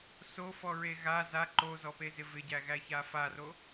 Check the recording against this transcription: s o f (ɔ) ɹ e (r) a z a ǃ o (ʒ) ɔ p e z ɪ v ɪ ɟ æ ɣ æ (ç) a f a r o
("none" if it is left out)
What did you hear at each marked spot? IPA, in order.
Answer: ɔ, ɣ, z, ç

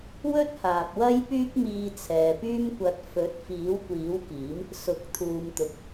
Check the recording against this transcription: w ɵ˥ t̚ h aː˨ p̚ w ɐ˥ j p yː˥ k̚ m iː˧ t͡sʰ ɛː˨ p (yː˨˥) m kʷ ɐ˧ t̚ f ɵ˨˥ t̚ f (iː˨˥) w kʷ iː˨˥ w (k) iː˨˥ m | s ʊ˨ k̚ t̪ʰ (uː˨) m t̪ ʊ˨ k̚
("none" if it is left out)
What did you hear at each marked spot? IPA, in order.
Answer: yː˥, iː˨˥, k, uː˨

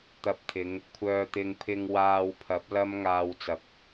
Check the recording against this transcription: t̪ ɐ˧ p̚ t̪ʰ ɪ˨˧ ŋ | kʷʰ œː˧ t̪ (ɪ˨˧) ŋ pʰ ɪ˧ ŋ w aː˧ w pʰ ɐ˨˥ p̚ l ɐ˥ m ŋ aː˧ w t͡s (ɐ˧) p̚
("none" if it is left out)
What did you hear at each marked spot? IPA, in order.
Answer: ɪ˧, ɐ˨

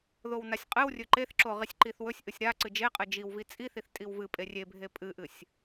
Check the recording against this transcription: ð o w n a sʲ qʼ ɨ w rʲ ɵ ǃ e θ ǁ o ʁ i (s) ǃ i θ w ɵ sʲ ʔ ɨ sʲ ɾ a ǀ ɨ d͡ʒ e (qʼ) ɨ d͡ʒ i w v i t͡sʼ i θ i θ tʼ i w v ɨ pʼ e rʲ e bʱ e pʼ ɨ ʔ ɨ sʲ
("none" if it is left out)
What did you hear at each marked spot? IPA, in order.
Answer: sʲ, qʼ

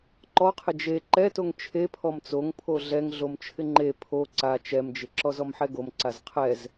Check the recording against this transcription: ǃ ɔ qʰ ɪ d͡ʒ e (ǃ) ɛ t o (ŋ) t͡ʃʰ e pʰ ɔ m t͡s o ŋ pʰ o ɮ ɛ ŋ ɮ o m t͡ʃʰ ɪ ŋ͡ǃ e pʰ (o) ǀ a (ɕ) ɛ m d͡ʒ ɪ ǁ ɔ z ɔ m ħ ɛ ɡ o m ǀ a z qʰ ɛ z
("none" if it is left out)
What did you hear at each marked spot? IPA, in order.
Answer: ǃ, ŋ, o, t͡ʃ

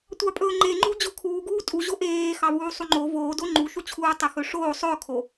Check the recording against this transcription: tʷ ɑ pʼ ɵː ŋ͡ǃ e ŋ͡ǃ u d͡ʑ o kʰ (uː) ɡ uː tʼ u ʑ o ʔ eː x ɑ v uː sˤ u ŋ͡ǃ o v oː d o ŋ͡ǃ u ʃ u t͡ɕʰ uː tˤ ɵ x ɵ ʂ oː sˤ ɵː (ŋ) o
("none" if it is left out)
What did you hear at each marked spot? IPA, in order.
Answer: uː, kʰ

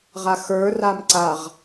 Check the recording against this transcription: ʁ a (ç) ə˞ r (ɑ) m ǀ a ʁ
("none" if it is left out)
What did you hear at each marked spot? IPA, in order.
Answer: x, a

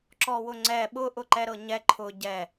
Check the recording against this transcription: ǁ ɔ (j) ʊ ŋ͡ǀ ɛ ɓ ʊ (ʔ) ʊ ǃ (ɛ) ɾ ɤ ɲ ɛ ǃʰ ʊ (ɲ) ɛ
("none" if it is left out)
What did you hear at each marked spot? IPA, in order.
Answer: w, ʔ, ɛ, ɟ

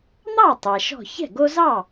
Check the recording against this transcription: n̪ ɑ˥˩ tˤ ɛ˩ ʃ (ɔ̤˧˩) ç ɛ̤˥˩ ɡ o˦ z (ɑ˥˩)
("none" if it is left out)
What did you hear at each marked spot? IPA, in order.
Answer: ɔ̤˧˩, ɑ˥˩

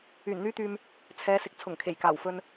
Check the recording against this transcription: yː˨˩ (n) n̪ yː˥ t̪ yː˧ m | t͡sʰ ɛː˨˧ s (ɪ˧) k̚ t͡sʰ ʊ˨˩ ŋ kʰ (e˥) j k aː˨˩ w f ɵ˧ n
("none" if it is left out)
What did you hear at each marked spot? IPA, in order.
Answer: n, ɪ˨, e˨˩

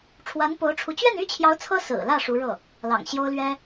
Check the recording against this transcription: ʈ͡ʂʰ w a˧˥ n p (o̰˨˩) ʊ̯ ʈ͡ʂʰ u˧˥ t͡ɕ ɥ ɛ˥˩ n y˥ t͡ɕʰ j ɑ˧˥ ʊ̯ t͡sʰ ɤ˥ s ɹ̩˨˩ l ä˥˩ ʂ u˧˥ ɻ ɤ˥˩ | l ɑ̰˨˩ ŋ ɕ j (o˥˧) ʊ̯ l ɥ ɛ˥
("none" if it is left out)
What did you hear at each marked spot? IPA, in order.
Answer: o˧˥, o˥

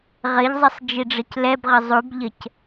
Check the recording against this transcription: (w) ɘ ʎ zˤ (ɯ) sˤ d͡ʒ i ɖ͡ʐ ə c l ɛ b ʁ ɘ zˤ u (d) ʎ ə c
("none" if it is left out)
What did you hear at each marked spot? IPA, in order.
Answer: ʁ, ə, b

